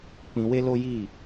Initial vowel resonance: nasal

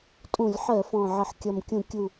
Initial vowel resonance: nasal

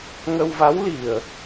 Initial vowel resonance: oral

